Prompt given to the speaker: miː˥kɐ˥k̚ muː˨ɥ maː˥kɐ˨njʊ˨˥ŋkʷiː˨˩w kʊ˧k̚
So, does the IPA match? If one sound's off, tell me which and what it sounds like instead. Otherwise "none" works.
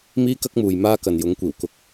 ɥ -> j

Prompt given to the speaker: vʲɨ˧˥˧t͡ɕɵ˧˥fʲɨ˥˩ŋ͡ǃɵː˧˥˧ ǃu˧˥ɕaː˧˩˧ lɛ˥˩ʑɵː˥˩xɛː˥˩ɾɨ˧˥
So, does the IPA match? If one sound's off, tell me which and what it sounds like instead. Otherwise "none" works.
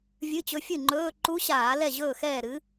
none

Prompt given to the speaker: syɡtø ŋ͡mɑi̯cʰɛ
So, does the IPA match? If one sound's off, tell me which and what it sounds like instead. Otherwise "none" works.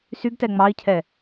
ø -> ɛ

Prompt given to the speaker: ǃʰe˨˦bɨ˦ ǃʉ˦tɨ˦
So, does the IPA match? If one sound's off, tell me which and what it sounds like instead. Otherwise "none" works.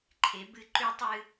t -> tˤ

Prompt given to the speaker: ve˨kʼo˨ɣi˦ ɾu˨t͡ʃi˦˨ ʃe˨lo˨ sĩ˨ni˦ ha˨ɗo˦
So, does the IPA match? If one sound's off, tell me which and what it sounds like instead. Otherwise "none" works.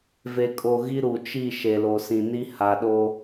none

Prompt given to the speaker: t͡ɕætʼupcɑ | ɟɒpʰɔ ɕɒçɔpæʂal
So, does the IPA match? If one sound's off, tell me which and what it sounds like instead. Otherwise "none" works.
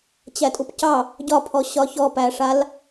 none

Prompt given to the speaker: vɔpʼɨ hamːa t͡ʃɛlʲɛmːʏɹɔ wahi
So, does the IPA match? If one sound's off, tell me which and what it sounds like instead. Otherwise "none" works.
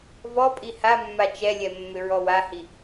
ɨ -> i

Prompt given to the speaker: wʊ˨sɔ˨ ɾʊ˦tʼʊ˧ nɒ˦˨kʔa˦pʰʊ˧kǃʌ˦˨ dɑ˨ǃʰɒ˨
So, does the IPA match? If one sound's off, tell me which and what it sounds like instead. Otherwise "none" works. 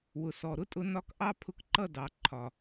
a˦ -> ɑ˦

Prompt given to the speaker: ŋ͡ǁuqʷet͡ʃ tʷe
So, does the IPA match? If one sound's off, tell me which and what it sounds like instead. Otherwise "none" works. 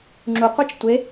none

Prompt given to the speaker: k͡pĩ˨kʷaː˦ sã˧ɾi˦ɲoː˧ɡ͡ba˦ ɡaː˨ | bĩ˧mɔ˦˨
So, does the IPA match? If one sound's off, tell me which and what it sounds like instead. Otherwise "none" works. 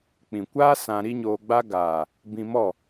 none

